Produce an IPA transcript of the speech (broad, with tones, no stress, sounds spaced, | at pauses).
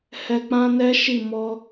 h ɛ˧ k͡p ã˦ n ɛ˦ ʃ i˦˨ m ɔ˧